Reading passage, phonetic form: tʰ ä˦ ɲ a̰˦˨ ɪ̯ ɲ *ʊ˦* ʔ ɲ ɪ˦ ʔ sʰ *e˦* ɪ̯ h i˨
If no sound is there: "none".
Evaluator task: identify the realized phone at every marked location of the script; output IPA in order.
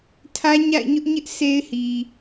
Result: ʊ˦, e˦

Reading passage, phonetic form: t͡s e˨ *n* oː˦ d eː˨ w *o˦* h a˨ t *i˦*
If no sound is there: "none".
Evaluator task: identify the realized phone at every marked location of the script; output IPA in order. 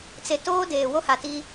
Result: t, o˦, i˦

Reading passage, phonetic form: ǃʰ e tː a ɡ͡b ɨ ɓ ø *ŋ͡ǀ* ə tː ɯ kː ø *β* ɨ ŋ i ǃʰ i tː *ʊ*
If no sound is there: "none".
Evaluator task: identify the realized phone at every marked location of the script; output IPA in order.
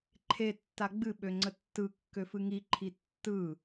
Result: ŋ͡ǀ, f, ɯ

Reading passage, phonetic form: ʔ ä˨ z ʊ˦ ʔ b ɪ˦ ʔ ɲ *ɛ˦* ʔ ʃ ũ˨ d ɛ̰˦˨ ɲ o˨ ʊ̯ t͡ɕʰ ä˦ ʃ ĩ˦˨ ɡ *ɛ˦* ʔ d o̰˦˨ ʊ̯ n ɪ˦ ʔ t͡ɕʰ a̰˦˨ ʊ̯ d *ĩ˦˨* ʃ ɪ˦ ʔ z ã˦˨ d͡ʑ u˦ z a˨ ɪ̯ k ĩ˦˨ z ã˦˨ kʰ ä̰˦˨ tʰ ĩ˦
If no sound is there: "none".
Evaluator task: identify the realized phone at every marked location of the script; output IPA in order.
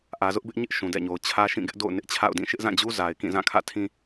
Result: ɪ˦, ɪ˦, ĩ˦˨

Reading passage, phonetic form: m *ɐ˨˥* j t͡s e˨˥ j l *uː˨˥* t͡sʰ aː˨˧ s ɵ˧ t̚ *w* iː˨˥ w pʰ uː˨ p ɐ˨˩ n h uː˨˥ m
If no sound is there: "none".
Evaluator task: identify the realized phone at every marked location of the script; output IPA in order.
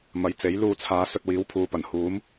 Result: ɐ˨˥, uː˧, w

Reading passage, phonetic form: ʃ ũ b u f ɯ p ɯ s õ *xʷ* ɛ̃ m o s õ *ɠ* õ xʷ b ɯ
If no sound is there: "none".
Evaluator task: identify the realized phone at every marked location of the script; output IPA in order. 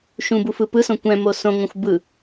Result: kʷ, ŋ

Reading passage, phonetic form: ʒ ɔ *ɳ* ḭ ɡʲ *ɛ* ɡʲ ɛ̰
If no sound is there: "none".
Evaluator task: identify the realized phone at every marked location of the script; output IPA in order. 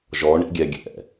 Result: ɳ, ɛ

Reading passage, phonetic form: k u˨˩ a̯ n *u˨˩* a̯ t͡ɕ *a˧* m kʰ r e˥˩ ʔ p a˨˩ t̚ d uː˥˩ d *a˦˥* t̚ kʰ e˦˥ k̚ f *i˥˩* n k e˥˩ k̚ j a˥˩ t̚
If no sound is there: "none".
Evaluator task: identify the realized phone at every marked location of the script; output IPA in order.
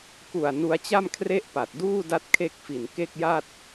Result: u˧, a˥˩, a˦˥, i˨˩

